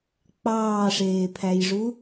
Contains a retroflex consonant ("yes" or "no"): yes